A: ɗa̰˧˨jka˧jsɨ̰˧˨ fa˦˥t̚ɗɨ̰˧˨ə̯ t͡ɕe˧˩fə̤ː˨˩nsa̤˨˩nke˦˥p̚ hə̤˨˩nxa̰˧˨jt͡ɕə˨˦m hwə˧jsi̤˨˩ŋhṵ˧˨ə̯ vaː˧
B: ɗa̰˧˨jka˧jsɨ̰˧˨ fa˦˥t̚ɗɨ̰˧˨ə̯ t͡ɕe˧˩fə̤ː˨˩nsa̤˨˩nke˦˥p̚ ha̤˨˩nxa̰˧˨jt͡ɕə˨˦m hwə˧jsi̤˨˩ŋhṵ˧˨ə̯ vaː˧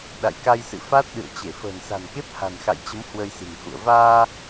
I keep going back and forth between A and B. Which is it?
B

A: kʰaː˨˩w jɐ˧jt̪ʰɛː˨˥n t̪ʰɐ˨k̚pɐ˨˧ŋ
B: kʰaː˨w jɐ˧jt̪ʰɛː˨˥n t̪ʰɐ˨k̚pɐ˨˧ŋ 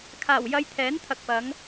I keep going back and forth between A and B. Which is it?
A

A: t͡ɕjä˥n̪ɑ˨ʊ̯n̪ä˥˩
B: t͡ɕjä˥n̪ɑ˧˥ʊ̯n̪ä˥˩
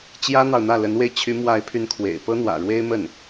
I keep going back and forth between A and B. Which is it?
A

